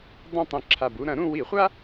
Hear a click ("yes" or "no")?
yes